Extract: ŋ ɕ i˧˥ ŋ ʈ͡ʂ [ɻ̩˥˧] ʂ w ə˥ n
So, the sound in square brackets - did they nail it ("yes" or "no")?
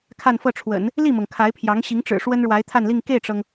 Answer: no